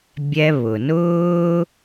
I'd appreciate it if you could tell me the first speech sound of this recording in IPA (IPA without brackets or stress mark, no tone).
bʲ